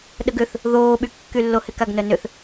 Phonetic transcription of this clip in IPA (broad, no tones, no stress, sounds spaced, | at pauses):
ɗ ə ɡ ʏ θ | ð oː ɓ y kː y lː o h ɪ k a ɡ n œ n ʏ θ